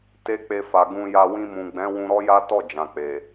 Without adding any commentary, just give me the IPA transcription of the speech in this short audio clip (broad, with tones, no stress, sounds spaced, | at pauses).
t e˦ k͡p e˧ f a˨ ɡ ũ˧ j a˧ w ĩ˧ m ũ˨ ɡ͡b ɛ̃˨˦ w ũ˧ ɾ ɔ˦ j a˦ t ɔ˦˨ d͡ʒ ã˨ k͡p e˨